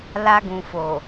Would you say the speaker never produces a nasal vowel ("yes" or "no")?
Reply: no